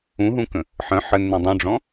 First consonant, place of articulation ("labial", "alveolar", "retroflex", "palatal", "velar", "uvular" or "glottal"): glottal